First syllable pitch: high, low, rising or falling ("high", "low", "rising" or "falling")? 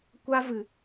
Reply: high